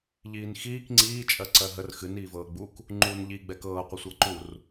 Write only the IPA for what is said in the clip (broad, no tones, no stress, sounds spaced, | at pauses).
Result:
ʎ iː n x iː k ŋ͡ǀ iː t͡ʃʼ ɜ ǀ ɜ ɦ ə r x ɨ n iː v ɤː ɡ͡b u k | ŋ͡ǃ uː n ʎ i ɡ͡b ɛ k ɤː qʷ ə sʷ ɤ ǃ u r